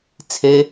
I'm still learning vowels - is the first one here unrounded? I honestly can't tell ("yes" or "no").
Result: yes